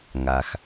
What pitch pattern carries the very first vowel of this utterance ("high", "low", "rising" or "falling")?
low